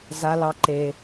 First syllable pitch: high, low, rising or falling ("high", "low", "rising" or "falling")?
high